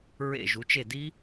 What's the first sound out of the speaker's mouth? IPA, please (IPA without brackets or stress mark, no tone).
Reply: ɹ